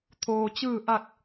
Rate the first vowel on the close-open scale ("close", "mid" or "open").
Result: mid